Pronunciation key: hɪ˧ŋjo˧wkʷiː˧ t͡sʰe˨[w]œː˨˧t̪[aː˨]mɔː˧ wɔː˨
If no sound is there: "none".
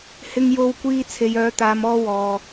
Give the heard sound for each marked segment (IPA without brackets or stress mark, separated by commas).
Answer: j, aː˨